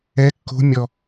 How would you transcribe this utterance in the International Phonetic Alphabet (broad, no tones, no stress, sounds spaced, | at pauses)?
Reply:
ɛ kː o̤ mʲ ɔ